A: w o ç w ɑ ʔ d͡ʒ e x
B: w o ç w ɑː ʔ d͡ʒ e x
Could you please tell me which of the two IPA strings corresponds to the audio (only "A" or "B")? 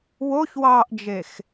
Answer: B